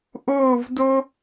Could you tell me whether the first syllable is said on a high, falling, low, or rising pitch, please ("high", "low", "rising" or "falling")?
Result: falling